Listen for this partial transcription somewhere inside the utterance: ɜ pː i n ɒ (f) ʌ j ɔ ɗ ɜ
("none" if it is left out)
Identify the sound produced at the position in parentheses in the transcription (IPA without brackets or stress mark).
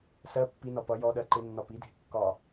p